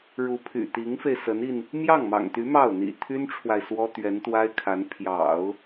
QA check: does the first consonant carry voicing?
yes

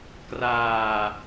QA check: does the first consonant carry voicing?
no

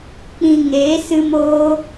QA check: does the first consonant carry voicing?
no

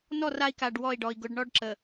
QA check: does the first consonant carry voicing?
yes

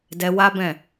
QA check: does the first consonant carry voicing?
yes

